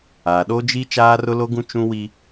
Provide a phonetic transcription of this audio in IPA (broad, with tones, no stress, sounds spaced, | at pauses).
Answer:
aː˨ ɗ o˦ d͡ʒ i˦ t͡ʃ aː˦ r ʊ˦ l o˦ ɡ ũ˦ t͡ʃ ũ˦ w i˦